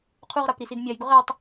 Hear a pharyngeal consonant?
no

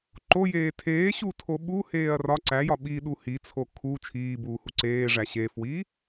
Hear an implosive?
yes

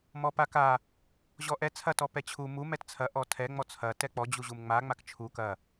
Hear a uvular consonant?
no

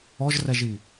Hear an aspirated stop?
no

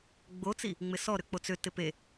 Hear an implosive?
no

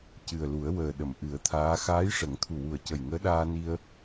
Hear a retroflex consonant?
yes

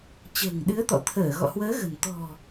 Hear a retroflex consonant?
no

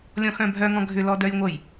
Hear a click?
no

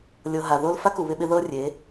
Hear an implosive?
yes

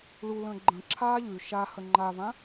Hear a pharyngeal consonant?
no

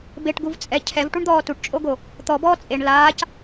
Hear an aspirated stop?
yes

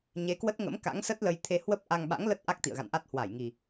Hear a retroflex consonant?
no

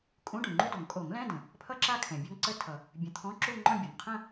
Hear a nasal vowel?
yes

